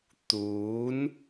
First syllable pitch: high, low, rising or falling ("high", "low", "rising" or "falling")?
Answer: rising